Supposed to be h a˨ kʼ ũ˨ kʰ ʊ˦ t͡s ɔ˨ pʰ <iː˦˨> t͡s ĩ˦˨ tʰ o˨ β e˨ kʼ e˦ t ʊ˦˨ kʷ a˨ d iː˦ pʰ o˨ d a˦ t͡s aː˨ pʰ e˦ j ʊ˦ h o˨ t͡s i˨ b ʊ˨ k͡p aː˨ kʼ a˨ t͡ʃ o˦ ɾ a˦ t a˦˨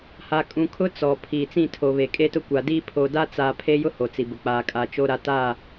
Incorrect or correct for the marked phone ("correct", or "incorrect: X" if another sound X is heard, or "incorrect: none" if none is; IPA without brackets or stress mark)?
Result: incorrect: iː˨